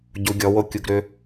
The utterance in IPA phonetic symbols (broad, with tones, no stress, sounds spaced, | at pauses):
ɟ u˩˧ ɡʲ ɔ˩˧ w o˦˨ kʲ u˩˧ ɡ ɾ ʏ˩˧